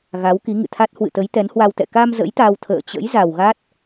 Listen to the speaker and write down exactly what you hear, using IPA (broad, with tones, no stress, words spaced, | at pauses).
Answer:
ɣa˨˦wki˨˦ ŋɨ̰˧˨t̪ʰa˦˥t̚ hwɨ̰˧˨t̪ə˨˦j t̪ɛ˨˦nhwa˧wt̪ɛ̰˧˨ ka˧m zə̰˧˥jt̪a˧wt̪ʰə̰ː˧˨t͡ɕə̰˧˥j za˨˩wɣa˦˥t̚